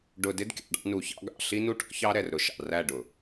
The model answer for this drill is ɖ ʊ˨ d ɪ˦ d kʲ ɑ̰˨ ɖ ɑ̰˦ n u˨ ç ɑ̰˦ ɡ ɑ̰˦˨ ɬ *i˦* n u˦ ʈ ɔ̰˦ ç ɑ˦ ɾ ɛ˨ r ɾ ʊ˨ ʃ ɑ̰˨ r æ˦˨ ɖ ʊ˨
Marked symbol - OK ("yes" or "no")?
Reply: yes